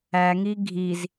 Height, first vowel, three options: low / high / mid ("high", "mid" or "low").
low